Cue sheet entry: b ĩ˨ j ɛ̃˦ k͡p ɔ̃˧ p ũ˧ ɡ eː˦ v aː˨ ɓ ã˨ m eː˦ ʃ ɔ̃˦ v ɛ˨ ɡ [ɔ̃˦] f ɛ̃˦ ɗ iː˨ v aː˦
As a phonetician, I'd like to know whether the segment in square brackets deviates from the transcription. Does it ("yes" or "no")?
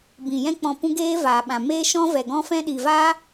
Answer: no